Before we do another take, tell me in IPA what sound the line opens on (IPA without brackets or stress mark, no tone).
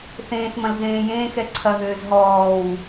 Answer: θ